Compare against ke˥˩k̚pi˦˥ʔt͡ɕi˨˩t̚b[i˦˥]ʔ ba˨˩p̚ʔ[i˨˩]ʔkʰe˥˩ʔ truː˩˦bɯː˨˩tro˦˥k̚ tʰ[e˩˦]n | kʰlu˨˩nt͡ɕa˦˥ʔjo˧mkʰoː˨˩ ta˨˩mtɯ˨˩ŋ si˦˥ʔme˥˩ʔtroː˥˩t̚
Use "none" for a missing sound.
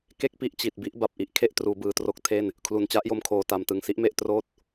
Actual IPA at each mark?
i˦˥, i˨˩, e˥˩

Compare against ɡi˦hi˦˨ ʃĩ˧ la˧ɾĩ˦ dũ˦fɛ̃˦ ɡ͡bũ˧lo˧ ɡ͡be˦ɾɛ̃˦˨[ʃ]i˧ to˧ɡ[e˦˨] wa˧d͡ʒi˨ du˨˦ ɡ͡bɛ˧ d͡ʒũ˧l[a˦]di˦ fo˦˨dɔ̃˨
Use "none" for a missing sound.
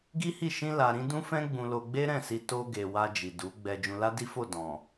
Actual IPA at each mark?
s, e˨, a˦

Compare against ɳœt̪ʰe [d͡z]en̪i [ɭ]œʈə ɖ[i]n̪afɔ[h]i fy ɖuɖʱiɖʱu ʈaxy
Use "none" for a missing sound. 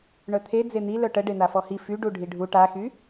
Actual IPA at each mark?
d͡z, l, e, h

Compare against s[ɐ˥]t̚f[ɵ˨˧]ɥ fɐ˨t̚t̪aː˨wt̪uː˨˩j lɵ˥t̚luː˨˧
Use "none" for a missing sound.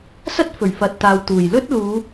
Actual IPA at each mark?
ɐ˥, ɵ˨˩

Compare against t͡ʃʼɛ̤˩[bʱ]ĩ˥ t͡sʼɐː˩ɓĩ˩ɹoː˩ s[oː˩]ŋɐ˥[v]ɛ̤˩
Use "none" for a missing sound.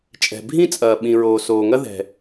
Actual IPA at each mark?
bʱ, oː˩, ð

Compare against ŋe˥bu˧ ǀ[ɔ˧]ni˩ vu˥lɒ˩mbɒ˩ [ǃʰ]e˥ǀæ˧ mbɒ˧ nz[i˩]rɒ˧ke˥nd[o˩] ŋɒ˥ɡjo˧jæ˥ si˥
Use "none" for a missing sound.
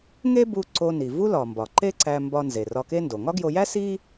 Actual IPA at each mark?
o˧, ǃ, e˩, o˩

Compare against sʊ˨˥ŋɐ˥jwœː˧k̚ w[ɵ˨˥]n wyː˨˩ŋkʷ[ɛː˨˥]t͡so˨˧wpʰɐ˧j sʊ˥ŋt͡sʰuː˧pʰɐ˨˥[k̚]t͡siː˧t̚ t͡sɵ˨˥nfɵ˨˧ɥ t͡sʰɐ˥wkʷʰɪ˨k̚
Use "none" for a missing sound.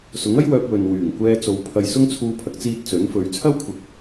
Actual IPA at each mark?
ɵ˨, ɛː˧, k̚

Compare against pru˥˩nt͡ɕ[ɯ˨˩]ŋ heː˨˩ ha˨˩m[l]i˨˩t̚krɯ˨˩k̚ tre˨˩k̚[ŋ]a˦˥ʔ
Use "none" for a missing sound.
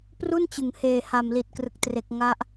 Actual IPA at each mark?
ɯ˨˩, l, ŋ

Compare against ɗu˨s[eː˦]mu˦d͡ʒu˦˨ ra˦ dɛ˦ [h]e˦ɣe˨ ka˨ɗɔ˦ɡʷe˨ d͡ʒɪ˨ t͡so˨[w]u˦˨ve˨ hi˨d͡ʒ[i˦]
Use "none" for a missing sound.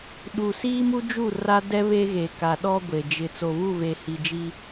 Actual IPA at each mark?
iː˦, β, β, i˦

